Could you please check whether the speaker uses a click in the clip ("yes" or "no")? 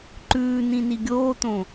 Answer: yes